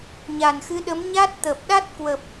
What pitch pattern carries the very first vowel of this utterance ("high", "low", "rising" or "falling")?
low